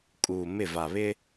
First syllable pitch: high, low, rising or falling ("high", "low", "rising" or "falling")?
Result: low